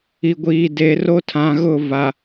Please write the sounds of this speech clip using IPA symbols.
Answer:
i˨ ɡʷ iː˨ d eː˨ r o˦ tʰ ã˨ ɣ ʊ˦˨ v a˨

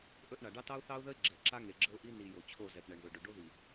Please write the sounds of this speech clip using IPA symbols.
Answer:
ʔ ɵ˦ ʔ ɳ a˨ ɖ ɑ˦ t ɑ˦ ʊ̯ θ ɑ˦ ʊ̯ ð ə˦ ɪ̯ ɡ͡ǁ ɛ˨ ǁ a˦ ŋ e˨ ɡ͡ǁ ə˦ ʊ̯ ʔ i˦ n i˨ j o˨ t͡ɕʰ o˦˨ z ɛ˨ p ɳ ɛ˨ ɳ ð ɵ˨ ɖ ɵ˨ ɖ o˦ ð i˨

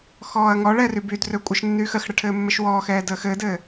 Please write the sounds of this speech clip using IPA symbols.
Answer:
x ɔː ɐ̯ ŋ ɔ ɭ ɛ r y b y d r ø kʷʼ ə ʃ nː yː x ə x ɽ ə ʈʰ ɘː mː ɘ ʃ w ɔː x ɛː d əː x ɘː d ɘː

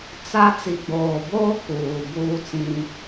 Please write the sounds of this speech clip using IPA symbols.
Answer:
t͡s a˦ t͡s i˨ ɡ͡b oː˨ b oː˦ k uː˨ b uː˦ t͡s ĩ˦

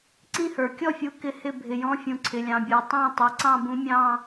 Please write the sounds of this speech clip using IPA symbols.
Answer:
ǀ ĩ˦˨ h ə˞˩ kʲ ɔ˦˨ fʲ u˨˦ k ɪ˦˨ h ɪ˦˨ bʱ ɪ˩ j ɔ̃˨˦ fʲ ũ˩ ǀʰ ɪ˩ lʲ ɑ̃˩ bʲ ə˞˩ tˤ æ̃˦˨ tˤ i˩ ǀ ɑ̃˦˨ b ũ˨˦ mʲ ɑ̃˦˨

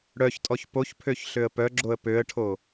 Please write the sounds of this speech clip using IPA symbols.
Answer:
ɽ œ ç tʼ ɔ ç p o ç pʰ ø ç ɬ ø ə̯ p œ ɡ͡ǁ o ə̯ p ø ə̯ ʈʰ o

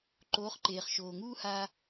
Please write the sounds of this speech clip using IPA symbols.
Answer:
ǃ oː˨˦ χ ǃ eː˨ χ ʃ oː˨ ŋ uː˦ h aː˧

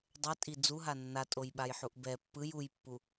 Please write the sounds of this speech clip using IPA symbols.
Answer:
dˤ ɛ tʼ i d͡z u ɦ a nː a tʼ o j ɓ a j ħ u ʔ b ɛ pː ɯ j u j pː u

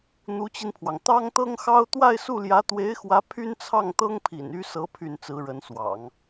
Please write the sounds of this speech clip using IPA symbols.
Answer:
n̪ u˧˥ t͡ɕ i˧ n pʰ w ɑ˩ ŋ t̪ ɑ˥ ŋ t̪ ɤ˥ ŋ x ɑ˥ ʊ̯ t̪ w a˥˧ ɪ̯ s u˥˩ l j ä˧˥ t̪ w e˧˥ ɪ̯ x w ä˧˥ pʰ y˥ n t͡sʰ ɑ˥˩ ŋ t̪ ɤ˥ ŋ pʰ ḭ˨˩ n y˥ s ɤ˧˥ pʰ y˥˩ n t͡s ɹ̩˧˥ ɻ ə˧˥ n s w ɑ̰˨˩˦ ŋ

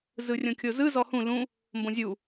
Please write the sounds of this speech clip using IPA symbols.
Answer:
z ɯ rʲ õ kʲ o z ɯ z ɔ h ũ l ũ | m b õ zʲ u

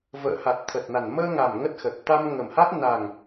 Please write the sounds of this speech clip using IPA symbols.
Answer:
v ə̰ː˧˨ h a˨˩ t̚ t̪ʰ ə˨˩ t̚ n a˨˩ n m əː˧ ŋ a˨˩ m ŋ ə˦˥ t̚ x ə˨˩ t̚ t̪ a˧ m ŋ ə˨˩ m h a˦˥ t̚ n a˨˩ ŋ

